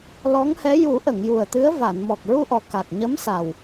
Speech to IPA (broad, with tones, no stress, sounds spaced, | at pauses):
l ɔ˧˥ ŋ h ɛ˧˥ j u˨˩˦ ʔ ə˨˩˨ ŋ j u˨˩ ə̯ t̪ ɨ˧˥ ə̯ v a˨˩˨ n m ɔ˨˩ k̚ ɹ u˧ ʔ ɔ˨˩ k a˨˩ k̚ ɲ ə˧˥ m s a˨˩ w